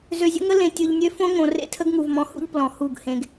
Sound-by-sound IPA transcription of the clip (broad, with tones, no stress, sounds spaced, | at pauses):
z ø˨ zʲ ə̰˦ ŋ ə˦ l ẽ˨ tʲ ɯ˨ ʎ nʲ ø˦ f õ˦ ŋ õ˨ r ḛ˦ tʰ ə˦ ɡ ŋ u˨ v m ɔ̃˨ h ṵ˦ ʎ p l ɔ̃˨ h u˦˨ ɡ h ẽ˨ ɡ